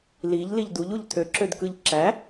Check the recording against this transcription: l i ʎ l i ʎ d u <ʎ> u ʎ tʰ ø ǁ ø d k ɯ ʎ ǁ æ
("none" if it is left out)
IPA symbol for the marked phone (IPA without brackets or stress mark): ʎ